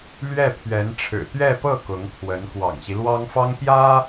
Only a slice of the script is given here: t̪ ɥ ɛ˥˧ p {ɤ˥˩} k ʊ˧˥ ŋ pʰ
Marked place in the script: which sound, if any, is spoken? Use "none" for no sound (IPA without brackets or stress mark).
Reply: ɤ˥˩